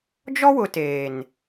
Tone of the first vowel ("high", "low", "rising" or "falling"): high